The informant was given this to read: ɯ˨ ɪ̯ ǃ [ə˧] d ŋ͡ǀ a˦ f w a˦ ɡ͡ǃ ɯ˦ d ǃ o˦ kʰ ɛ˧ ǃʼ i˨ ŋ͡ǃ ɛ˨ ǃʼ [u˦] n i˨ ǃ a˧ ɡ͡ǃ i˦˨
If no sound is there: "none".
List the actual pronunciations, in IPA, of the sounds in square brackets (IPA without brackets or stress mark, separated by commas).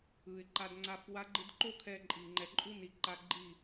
a˧, u˦